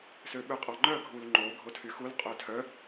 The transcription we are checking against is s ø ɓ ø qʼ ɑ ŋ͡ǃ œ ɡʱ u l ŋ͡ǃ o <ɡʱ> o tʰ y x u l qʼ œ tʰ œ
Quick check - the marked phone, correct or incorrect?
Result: correct